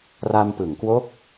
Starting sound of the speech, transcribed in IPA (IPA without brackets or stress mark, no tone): r